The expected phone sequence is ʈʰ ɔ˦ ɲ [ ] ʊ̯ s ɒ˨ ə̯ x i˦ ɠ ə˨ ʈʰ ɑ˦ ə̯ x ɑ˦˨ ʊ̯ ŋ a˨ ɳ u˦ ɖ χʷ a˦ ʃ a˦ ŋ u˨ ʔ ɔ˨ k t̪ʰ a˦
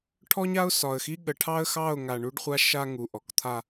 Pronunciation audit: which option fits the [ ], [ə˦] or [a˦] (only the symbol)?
a˦